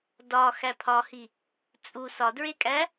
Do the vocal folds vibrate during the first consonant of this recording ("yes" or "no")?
yes